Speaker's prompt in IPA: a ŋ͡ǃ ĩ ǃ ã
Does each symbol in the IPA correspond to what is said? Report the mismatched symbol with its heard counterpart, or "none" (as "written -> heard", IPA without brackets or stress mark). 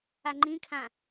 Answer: ǃ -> kʰ